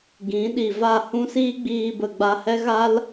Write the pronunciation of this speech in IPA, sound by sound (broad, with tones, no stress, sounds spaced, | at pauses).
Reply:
ɡ ĩ˨˦ ɗ i˨ v a˦˨ h ũ˦ s iː˦ ɡ͡b iː˧ b ə˨ ɡ͡b a˧ h ɛ˦ ɣ a˦ l